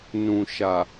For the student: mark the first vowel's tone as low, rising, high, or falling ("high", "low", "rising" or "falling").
low